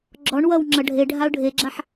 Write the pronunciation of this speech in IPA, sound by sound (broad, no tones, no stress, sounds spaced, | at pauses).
ɡ͡ǁ ɔ ɳ w ʌ w ŋ͡ǁ ʌ ɖʱ e ɖʱ a ʊ̯ ɖʱ e ɡ͡ǁ a ħ